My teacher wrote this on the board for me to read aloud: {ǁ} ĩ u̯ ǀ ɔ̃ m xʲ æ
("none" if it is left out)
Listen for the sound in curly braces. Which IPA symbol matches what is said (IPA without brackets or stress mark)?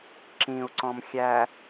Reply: ǁ